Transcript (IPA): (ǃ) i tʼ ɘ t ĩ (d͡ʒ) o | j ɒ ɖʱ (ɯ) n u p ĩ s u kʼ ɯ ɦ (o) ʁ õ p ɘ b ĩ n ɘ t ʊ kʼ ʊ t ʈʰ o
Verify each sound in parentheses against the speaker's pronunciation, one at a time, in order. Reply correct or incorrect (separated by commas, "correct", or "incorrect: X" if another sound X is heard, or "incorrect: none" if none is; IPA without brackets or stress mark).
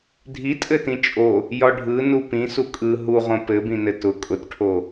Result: incorrect: dʱ, incorrect: t͡ʃʼ, correct, incorrect: u